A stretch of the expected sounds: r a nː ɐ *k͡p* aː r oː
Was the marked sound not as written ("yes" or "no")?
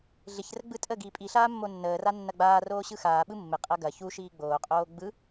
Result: yes